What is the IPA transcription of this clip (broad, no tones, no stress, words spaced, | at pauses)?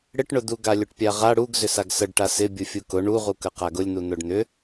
ɽɪʈɳʊd̪u ɡalʲʊʈpʲaʁa ɽuɡ zʏsaɡsəɖ ʈasɪbʲu fʲukʊ ɳuʁukə qaɡʊlʲn̪u n̪ʊɖn̪ʏ